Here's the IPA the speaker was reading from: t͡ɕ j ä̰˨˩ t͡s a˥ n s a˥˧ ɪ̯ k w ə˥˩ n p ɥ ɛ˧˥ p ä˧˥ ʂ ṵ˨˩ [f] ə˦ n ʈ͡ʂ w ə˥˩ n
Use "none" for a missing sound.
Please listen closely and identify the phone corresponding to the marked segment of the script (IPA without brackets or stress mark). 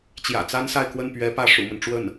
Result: m